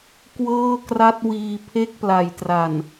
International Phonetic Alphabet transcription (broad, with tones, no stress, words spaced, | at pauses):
kwɤː˥˩kra˦˥t̚ wiː˧ pʰe˥˩k̚pla˩˦jtra˨˩n